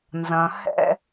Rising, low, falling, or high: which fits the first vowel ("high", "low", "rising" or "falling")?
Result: low